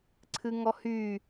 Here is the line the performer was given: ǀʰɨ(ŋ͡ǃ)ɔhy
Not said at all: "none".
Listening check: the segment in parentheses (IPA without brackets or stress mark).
ŋ